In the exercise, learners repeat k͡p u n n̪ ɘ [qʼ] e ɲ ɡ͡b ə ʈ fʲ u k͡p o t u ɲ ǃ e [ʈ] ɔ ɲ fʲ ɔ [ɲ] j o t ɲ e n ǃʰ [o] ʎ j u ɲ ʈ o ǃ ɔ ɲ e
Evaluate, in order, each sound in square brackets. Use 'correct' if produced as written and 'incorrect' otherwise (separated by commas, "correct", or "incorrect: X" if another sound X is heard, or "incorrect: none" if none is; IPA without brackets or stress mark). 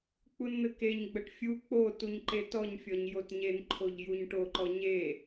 incorrect: k, incorrect: t, correct, correct